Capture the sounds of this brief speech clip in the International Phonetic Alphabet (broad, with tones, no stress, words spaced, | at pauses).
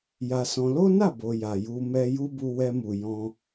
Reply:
ja˧sɔ̃˧ lo˦na˦˨bo˨ ja˨ ju˧mɛ˧ju˦ bu˧wɛ˧mu˨ jɔ̃˧